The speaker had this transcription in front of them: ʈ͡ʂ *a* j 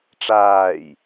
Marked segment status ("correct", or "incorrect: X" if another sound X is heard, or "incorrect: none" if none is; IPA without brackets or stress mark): incorrect: aː